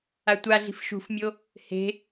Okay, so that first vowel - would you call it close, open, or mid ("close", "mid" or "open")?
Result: open